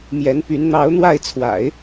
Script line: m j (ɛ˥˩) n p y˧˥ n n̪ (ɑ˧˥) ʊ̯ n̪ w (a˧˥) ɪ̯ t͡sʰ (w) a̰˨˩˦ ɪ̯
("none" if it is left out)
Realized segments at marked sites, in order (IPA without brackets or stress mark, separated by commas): ɛ˧˥, ɑ˧˥, a˥˩, w